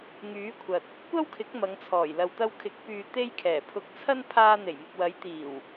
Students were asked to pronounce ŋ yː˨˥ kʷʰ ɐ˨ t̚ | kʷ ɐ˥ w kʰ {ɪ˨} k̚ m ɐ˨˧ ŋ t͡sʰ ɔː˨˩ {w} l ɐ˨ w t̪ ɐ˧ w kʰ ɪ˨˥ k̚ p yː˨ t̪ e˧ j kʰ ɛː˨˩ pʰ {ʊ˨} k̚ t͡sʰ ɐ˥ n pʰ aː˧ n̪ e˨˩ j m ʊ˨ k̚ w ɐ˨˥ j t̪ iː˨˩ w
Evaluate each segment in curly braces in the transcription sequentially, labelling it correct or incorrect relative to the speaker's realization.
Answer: incorrect, incorrect, incorrect

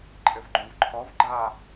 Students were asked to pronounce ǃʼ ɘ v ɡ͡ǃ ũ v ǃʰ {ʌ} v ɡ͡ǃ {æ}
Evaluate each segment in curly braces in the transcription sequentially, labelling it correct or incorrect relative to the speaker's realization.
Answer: incorrect, incorrect

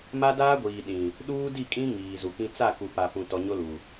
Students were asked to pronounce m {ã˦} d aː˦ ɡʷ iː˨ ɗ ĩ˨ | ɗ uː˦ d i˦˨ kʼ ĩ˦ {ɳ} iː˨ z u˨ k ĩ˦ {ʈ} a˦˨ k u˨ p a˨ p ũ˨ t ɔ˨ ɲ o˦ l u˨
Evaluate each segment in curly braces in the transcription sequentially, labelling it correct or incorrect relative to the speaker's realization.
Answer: incorrect, incorrect, incorrect

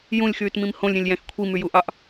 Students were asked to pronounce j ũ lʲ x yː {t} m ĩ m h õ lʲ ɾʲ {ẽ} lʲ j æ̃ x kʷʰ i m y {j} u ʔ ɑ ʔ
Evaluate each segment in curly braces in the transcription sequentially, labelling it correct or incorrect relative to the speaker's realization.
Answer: correct, correct, correct

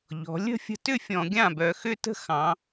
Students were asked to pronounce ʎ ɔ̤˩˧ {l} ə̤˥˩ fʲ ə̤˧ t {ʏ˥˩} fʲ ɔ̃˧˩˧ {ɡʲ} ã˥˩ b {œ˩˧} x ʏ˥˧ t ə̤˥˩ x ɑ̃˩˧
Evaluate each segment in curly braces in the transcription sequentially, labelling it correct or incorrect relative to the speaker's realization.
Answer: incorrect, correct, correct, correct

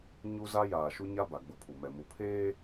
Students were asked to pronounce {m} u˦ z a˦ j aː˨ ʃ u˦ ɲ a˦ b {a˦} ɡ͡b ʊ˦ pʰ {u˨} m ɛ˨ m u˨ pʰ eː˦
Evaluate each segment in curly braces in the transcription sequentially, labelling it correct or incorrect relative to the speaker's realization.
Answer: incorrect, incorrect, correct

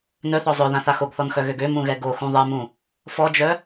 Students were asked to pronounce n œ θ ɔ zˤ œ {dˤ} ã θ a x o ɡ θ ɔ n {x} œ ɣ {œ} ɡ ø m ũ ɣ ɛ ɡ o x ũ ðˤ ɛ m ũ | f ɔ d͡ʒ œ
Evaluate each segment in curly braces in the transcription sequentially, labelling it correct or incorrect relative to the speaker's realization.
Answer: incorrect, correct, incorrect

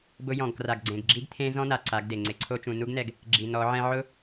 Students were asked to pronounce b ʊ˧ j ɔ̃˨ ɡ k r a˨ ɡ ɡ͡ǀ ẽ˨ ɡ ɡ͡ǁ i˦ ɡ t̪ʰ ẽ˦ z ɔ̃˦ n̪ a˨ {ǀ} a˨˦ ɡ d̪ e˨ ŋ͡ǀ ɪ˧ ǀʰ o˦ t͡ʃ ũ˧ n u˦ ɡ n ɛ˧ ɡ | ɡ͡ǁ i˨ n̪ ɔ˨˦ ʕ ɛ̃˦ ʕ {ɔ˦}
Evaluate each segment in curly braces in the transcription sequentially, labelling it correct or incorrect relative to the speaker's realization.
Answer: correct, incorrect

